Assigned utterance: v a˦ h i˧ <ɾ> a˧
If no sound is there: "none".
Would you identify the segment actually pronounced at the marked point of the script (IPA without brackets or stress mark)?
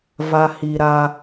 ɾ